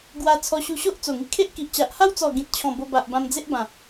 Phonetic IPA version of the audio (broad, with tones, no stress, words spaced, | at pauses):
ɡwa˧ t͡sʰɔ˧ɕu˧ɕo˦ʔ t͡so˨˩ŋi˧kʰe˦ʔ ki˨ʔt͡ɕa˨ʔ ha˦wt͡sɔ˨˩ ɡĩ˨t̚t͡ɕʰɔ̃˨˩ bo˧ba˨ʔ bã˧md͡ze˦ʔbã˨˩